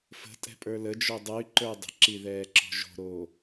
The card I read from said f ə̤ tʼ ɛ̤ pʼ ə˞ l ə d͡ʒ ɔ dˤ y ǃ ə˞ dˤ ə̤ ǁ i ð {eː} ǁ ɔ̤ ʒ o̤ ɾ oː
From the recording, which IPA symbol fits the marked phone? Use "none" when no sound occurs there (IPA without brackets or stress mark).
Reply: ɛː